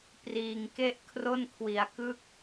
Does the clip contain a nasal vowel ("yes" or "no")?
no